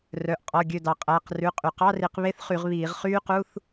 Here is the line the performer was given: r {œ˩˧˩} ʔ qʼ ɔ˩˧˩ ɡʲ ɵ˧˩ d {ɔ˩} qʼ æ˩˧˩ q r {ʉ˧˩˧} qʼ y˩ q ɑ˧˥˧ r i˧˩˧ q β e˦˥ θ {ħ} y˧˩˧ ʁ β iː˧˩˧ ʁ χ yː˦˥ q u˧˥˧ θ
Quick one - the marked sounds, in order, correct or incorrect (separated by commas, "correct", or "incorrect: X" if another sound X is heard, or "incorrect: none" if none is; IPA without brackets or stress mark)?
correct, incorrect: ɑ˩, incorrect: ʉ˩˧˩, incorrect: χ